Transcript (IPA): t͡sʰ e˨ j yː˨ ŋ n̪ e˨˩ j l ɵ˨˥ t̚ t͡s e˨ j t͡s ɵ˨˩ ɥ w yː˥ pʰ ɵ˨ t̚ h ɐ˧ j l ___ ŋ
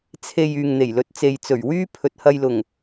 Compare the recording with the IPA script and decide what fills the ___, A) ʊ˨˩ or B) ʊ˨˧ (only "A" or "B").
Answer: A